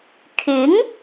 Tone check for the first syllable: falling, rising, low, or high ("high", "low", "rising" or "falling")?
rising